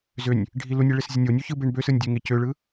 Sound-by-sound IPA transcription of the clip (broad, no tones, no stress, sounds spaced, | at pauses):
z ø nʲ | ɖʱ i l u nʲ e ɭ e s zʲ ə nʲ o nʲ u ç ɯ b e ɳ b ø s ɯ nʲ dʲ ø ŋ e c ø ɭ ɯ